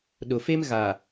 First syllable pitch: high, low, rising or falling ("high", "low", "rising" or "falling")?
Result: low